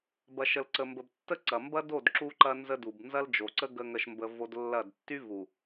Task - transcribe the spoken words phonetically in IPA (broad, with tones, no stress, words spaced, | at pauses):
bɐ˨ʃə˨lǀə˨ mbə˨btːə˦ǀɐ˨ mbɐ˦do˦˨d ǁu˦ǃɐ˦ nzə˦du˨b nzɐ˦ld͡ʒo˨ǀə˦ ɡə˦ŋə˦ʃmbə˦vo˦d lːɐ˦˨d tːy˦vu˨